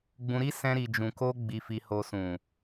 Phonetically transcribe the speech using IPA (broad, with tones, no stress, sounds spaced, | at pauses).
ɡ͡b ũ˧ ɾ i˦ s ɛ̃˦ ɾ i˧ d͡ʒ ũ˧ k o˦ ɡ͡b i˧ f i˧ h o˧ s ũ˨